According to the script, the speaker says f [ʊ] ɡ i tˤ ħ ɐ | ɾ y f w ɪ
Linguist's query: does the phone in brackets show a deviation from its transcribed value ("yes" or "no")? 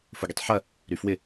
no